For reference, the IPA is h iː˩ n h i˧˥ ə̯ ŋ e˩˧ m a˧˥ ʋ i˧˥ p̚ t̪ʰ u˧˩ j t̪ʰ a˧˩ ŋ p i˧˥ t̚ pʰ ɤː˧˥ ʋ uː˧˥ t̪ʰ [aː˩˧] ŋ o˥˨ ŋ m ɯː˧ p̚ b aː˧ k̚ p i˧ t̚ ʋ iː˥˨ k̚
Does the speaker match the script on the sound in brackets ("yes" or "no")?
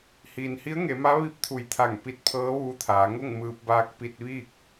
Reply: yes